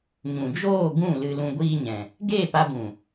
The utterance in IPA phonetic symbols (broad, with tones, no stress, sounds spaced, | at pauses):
ɲ ũ˨ d͡ʒ oː˦˨ ɡ ũ˦˨ l ɨ˧ l ũ˧ ɡʷ iː˦ ɲ ɛ̃˨ | ɡ eː˦˨ p a˧ b ũ˨